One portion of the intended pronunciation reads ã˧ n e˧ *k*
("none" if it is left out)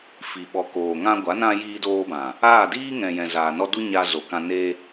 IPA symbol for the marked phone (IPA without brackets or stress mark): none